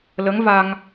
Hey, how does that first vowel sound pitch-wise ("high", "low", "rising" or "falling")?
rising